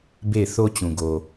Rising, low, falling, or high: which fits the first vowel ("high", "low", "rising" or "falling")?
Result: falling